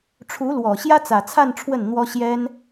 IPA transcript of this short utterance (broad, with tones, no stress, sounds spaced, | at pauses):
ʈ͡ʂʰ u˧˥ l w ɔ˨˩ ɕ j ä˥ t͡s ä˨˩ t͡sʰ a˥˧ n ʈ͡ʂʰ w ə˥˩ n n̪ w ɔ˥ ɕ j ɛ˥ n